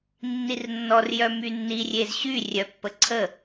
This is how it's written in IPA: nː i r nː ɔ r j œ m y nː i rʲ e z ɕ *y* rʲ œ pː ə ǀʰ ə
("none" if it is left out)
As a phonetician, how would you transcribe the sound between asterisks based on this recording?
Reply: y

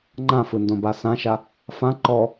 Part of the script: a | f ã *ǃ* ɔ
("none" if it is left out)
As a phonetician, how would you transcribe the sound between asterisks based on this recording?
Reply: ǃ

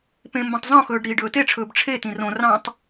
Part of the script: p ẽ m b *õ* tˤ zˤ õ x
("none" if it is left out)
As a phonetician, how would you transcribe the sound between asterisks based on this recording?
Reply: õ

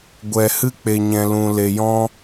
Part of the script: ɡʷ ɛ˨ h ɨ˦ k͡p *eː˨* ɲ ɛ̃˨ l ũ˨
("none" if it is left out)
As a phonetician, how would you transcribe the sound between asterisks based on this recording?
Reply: e˨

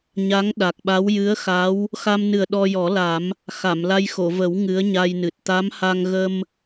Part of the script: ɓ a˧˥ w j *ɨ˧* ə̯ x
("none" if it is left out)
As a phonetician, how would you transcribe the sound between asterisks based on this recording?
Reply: ɨ˧˥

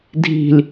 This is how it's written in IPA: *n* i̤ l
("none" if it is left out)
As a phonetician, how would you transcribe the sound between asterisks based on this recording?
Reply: dʱ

